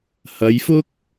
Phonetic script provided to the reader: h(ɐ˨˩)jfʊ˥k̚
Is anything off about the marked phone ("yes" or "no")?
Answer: yes